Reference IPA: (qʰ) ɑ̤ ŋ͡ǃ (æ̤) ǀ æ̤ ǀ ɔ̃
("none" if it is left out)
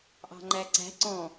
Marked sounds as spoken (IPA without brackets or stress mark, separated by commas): ʔ, æ